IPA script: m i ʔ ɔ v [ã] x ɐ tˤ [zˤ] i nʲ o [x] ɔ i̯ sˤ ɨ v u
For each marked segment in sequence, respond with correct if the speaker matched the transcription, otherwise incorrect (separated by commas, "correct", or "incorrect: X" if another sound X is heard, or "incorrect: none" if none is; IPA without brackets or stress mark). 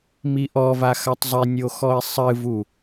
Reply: incorrect: a, correct, correct